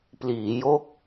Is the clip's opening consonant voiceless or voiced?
voiceless